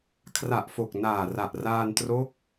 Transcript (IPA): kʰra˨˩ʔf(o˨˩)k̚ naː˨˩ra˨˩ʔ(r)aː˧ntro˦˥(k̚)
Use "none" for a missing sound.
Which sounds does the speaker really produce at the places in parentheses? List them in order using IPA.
o˨˩, r, k̚

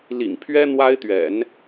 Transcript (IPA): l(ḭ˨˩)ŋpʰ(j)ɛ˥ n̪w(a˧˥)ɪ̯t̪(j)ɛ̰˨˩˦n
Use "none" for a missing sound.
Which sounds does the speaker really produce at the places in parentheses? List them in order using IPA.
ḭ˨˩, ɥ, a˥, ɥ

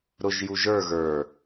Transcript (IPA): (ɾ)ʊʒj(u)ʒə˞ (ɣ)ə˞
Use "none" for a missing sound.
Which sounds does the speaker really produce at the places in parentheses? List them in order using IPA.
ɾ, u, ɣ

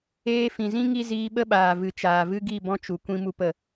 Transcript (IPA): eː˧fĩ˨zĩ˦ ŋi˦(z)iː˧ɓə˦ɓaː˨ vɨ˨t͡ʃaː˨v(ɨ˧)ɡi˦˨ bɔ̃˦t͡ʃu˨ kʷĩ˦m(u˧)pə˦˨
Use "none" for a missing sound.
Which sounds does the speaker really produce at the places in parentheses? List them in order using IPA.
z, ɨ˦, u˦

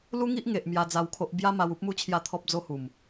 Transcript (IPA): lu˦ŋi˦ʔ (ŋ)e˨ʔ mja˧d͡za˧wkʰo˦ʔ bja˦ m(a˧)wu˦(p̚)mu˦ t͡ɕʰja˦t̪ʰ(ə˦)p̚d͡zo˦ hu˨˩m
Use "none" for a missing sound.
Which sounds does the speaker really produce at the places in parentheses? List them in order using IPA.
ŋ, a˧, p̚, ɔ˦

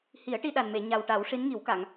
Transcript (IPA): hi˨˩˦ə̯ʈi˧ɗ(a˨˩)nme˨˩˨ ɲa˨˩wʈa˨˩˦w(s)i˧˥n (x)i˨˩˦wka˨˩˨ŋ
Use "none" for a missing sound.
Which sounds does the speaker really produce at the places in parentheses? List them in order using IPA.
a˨˩, ʂ, ŋ

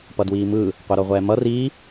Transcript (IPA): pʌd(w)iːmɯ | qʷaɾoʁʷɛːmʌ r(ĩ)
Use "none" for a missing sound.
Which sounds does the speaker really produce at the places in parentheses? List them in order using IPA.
w, i

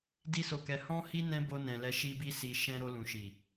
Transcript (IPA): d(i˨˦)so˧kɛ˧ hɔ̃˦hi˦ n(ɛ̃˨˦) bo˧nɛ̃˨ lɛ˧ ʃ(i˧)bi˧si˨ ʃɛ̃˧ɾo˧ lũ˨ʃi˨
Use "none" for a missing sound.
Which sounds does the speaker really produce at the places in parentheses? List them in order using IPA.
i˦, ɛ̃˦, i˧

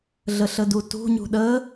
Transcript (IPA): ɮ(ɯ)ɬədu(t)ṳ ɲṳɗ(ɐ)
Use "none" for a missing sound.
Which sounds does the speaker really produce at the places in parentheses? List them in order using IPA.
ə, t, ə

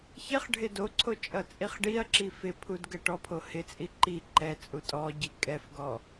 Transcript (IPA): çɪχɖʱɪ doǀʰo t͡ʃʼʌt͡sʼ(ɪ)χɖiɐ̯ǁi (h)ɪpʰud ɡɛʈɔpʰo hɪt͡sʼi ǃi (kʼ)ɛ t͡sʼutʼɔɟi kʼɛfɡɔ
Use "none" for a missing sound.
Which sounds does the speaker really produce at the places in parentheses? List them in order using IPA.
i, f, ǃ

